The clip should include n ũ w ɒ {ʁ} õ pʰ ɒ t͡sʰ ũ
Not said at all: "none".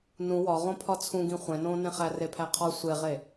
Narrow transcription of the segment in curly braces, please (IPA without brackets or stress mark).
ʁ